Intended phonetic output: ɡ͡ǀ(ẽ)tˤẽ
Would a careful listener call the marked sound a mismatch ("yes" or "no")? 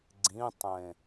yes